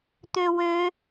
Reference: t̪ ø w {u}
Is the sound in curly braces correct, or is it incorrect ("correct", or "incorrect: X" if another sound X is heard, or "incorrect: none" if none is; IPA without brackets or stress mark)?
incorrect: ø